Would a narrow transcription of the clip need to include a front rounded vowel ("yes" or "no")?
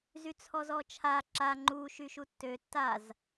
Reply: yes